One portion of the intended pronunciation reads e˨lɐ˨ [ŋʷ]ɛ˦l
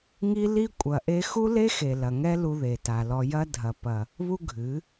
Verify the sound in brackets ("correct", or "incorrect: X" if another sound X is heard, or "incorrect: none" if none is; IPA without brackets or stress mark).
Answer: incorrect: ŋ